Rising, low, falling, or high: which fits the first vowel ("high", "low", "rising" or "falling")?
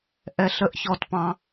high